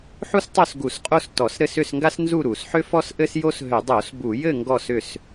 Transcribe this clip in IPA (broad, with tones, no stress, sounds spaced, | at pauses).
ħ u˥ s tˤ o˥˨ s ɡ u˧˩˧ s qʼ o˥˨ s t ɔ˧˩˧ s ɾ ɘ˥˨ s ʏ˥˨ s ŋ ɡ a˥ s n z u˥˨ ɾ u˧˩˧ s ħ ʏ˥ f ɔ˥ s ʔ ɘ˥ s j o˥ s ɦ ʏ˧˩˧ dˤ o˧˩˧ s b u˧˩˧ j ɘ˥˨ ŋ ɡ ɔ˥˨ s ʏ˥˨ s